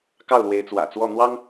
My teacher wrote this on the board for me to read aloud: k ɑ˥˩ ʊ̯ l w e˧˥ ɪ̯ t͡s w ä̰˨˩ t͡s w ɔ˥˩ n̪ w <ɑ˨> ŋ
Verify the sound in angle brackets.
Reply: incorrect: ɑ˥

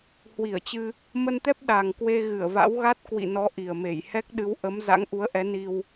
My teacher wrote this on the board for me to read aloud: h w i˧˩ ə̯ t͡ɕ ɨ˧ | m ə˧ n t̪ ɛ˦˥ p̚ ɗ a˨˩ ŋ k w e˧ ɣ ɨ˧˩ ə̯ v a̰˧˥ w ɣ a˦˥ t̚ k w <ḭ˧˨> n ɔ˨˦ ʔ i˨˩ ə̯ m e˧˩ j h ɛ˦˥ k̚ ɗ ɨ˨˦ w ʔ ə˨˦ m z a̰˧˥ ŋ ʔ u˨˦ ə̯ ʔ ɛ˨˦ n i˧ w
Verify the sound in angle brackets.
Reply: correct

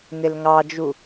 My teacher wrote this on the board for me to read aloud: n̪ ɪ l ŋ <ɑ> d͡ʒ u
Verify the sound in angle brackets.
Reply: correct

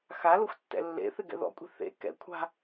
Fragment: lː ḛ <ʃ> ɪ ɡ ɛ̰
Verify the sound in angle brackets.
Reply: incorrect: θ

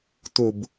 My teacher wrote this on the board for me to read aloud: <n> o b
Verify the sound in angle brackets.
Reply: incorrect: t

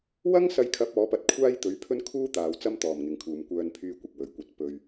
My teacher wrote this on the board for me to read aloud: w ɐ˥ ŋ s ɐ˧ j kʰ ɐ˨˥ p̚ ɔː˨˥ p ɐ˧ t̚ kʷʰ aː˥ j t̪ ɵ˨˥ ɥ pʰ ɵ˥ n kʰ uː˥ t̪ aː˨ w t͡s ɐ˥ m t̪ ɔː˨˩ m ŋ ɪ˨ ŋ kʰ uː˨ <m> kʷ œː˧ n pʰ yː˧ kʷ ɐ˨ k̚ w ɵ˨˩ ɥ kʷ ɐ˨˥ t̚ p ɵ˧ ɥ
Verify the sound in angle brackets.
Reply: correct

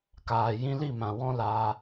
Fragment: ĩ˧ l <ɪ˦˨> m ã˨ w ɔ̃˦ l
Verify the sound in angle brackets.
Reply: incorrect: i˦˨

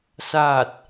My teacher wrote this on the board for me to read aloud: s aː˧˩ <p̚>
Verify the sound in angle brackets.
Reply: incorrect: t̚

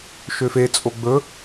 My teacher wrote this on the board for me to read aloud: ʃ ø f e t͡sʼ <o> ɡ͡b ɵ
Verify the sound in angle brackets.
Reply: correct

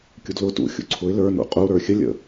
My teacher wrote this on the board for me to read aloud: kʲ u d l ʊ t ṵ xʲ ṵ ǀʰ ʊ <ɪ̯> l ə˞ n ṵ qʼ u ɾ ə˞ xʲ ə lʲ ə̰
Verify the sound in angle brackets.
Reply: correct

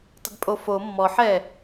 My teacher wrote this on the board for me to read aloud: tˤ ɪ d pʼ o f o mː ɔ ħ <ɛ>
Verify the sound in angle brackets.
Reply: correct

